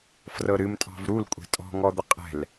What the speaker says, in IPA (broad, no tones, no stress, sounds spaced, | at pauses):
f r ɤ ɾ ɨ m tʼ ɑ̤ v ɾ u l kʷʼ ɛ̤ tʼ ɔ̤ ŋ ɔ d̪ ə qʼ ɛ̤ l